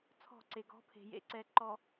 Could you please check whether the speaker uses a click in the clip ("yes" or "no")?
yes